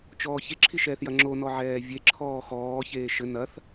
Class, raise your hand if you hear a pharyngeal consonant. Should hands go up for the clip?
yes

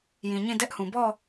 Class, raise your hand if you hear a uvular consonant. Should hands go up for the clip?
no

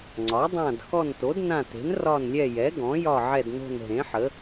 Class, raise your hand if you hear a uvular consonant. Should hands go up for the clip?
no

